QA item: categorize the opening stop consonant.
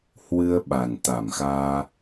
implosive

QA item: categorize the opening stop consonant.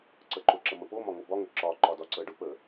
click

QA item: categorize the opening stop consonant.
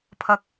aspirated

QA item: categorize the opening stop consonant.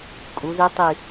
ejective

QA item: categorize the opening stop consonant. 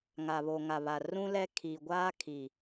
aspirated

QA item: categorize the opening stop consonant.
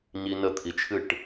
aspirated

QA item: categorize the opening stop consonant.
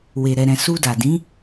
plain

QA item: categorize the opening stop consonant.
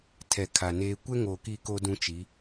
aspirated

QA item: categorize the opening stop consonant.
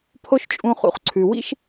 aspirated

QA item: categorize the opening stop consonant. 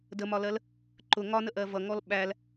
plain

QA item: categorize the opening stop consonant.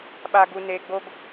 implosive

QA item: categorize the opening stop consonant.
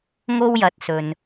plain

